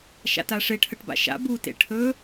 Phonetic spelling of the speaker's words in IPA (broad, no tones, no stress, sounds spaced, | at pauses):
ʃ a̰ t a ʂ e ʈʰ ə ʈ b a̰ ʃ a̰ b u t ḛ ʈʰ ɵ